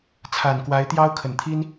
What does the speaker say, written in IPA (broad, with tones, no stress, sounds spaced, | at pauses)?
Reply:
t͡sʰ a˨˩ n k w a˧˥ ɪ̯ t̪ j ɑ˥ ʊ̯ kʰ ə˨˩ n t̪ʰ i˥ n